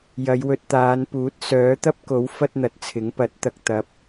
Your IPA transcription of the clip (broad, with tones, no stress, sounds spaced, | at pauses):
j ɐ˨˧ j w ɵ˧ t̚ t̪ aː˨˧ n p uː˨˥ t̚ s œː˨˥ t̪ ɐ˥ p̚ k o˨˥ w f ɐ˥ t̚ n̪ ɐ˨ t̚ t͡sʰ ɪ˨˥ ŋ p ɐ˨˥ t̚ t̪ ɐ˧ k̚ t̪ ɐ˨˥ p̚